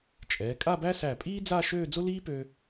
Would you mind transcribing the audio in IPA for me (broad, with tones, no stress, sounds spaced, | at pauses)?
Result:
t͡ʃʼ ɛː˩˧ kʼ a˥˧ b æ˥ s æ˧˩ pʼ iː˥ d͡z a˥˧ ʃ øː˥˧ d͡z ʊ˥ l iː˥ p øː˧